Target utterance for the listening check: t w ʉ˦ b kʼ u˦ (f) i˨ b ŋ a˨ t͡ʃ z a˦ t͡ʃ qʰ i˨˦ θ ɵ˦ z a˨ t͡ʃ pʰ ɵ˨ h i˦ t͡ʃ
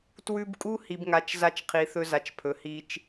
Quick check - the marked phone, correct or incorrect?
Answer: incorrect